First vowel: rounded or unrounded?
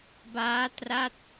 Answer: unrounded